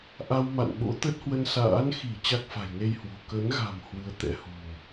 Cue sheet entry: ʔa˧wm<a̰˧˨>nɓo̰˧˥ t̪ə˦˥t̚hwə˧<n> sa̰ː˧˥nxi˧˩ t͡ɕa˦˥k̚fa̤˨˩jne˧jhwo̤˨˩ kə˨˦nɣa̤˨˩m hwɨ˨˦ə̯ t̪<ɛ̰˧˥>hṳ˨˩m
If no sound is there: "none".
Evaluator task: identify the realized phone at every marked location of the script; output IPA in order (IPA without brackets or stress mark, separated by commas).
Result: a̰˧˨, n, ɛ̰˧˥